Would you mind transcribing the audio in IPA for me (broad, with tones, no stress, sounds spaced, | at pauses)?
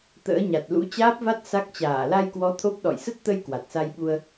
t̪ ə̰ː˧˥ ɲ a˨˩ t̚ l ṵ˧˥ t͡ɕ aː˦˥ p̚ v a˦˥ t̚ s a˦˥ k̚ t͡ɕ aː˧˩ l a˧ j k w ɔ˨˦ t̪ʰ o˦˥ p̚ ɗ ɔ̰˧˨ j s ə˦˥ t̚ t̪ ə˧ j k w a˨˩ t̚ s a˧ j ɓ u˧ ə̯